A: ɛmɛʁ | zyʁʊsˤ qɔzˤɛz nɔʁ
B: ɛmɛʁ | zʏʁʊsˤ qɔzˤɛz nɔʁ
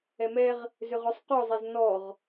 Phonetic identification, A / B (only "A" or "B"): B